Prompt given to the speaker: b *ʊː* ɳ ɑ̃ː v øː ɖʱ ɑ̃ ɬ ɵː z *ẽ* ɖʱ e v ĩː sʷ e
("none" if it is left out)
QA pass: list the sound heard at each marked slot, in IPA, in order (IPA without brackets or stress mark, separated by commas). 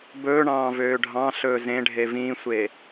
ɵː, ẽ